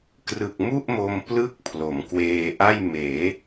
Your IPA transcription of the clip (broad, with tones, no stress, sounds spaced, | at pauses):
k r ɯ˨˩ k̚ m u˥˩ ʔ m o˧ m p l ɯ˦˥ k̚ pʰ l o˩˦ m k w eː˧ ʔ a˥˩ j m eː˩˦